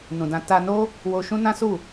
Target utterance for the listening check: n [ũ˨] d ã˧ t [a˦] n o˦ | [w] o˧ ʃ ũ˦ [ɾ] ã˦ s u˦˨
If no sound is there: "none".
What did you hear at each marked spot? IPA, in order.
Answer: ũ˨, a˧, w, n

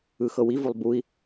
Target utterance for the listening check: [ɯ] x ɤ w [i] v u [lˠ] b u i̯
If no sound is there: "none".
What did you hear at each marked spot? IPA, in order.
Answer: ɯ, i, lˠ

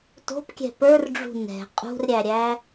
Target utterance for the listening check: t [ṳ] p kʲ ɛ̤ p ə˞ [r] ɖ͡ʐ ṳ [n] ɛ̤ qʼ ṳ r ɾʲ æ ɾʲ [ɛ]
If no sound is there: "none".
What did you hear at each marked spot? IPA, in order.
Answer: o̤, r, n, æ

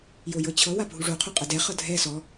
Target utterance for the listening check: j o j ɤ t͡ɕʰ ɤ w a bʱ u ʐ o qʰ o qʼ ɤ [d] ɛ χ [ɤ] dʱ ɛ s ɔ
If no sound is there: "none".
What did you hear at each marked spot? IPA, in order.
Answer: d, ɤ

